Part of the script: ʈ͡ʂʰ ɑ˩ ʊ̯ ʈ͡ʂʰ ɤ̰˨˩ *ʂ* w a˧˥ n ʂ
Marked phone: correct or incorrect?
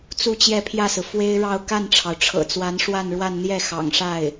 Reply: incorrect